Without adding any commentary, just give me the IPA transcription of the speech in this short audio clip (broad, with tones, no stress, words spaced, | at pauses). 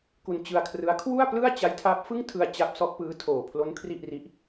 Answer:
ku˧nt͡ɕɯ˧a̯kʰrɯ˦˥a̯ kʰwu˥˩a̯plɯ˥˩a̯ t͡ɕa˦˥jtʰaː˦˥p̚fɯ˥˩ŋtʰɯ˧a̯ t͡ɕa˦˥p̚sɔ˦˥ʔpɯː˦˥ tʰoː˨˩pʰlo˦˥n kʰri˥˩ʔri˦˥ʔ